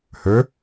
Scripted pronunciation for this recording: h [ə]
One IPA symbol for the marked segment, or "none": ə˞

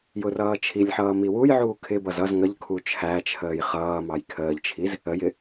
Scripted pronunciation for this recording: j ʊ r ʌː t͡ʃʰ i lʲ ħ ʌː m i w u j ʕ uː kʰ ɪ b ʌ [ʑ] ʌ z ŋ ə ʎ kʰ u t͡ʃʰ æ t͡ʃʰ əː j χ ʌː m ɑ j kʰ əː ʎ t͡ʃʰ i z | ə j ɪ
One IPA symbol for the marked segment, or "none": z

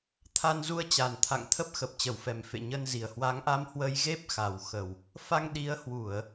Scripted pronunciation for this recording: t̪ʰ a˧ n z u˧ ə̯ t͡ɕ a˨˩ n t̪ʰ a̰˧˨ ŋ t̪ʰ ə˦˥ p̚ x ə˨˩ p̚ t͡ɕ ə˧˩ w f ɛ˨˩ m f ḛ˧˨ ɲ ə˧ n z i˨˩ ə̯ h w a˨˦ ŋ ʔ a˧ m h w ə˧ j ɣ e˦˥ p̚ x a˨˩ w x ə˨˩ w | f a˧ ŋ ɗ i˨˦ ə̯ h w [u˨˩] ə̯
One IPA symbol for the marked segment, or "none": u˧˩˨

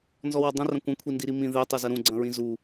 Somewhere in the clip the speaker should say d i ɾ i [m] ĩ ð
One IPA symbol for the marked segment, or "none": m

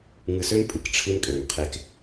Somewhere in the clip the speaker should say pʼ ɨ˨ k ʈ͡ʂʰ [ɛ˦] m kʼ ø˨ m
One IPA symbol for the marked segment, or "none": ɨ˦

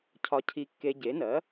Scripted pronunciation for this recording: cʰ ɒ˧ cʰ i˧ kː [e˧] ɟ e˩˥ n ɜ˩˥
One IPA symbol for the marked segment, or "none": e˧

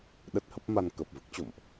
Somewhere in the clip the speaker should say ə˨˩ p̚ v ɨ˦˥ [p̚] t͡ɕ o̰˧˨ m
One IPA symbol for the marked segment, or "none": k̚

